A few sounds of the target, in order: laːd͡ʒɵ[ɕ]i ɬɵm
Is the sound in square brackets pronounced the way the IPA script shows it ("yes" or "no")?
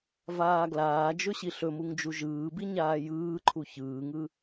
yes